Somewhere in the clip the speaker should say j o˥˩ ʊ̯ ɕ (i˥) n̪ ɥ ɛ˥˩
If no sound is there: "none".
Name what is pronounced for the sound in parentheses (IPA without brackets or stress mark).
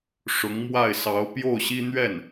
i˥